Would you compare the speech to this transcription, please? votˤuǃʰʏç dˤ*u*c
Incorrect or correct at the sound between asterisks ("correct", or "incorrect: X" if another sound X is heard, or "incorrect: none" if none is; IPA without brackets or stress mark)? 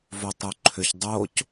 incorrect: o